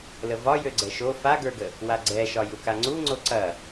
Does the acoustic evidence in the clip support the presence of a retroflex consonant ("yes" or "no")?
no